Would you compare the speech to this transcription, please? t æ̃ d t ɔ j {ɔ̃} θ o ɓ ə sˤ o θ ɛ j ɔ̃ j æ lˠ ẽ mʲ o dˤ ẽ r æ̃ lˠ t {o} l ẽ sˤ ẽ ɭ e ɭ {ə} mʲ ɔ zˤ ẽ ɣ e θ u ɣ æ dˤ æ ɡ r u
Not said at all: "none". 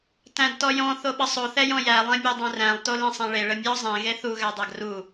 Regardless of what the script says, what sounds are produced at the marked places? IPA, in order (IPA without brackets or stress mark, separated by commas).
ɔ̃, o, ə